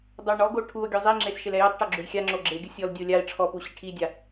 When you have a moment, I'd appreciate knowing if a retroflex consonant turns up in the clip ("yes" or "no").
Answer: yes